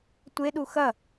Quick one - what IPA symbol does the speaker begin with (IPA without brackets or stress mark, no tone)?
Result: tʷ